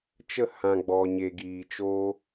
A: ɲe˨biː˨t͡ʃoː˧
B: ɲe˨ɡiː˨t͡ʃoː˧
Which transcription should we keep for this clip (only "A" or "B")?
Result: B